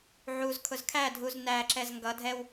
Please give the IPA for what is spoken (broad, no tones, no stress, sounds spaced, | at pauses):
ʕ u z kʰ ʊ z kʰ æ dʱ u z n æ ǁ ɛ z ŋ ɡ ʌ dʱ ɛ w